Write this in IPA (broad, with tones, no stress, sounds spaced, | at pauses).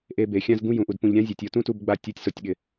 ʔ e˧ b e˨ xʲ ã˦ z ɡ ũ˦ j ũ˨ ʔ u˨ d p ũ˨ ʎ ɾʲ ã˦ zʲ e˨ tʲ o˧ t ũ˦ t u˦˨ b ɡ͡b a˧ tʲ u˨˦ tʲ s o˨ tʲ ɠ ɪ˨